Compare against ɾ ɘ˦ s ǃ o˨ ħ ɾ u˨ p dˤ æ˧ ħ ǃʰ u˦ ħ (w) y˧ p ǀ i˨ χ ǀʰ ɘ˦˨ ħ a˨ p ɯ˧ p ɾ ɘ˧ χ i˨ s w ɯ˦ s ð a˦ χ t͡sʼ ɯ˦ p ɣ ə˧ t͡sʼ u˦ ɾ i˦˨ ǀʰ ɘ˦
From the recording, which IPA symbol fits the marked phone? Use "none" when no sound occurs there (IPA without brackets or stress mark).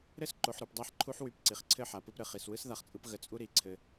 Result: w